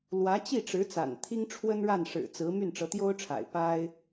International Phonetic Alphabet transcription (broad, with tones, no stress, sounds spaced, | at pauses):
l w ä˧˥ t͡ɕ i˥˩ ʈ͡ʂ ɻ̩˧˥ t͡s a̰˨˩ n t̪ʰ i˥ ŋ ʈ͡ʂʰ w ə˥ n ɻ a˥˩ n ʂ ɻ̩˨˩ t͡s ɹ̩˧˥ m y˥˩ n ʈ͡ʂ ɤ˧˥ t̪ j o˥ ʊ̯ ʈ͡ʂʰ a̰˨˩ ɪ̯ p a˥ ɪ̯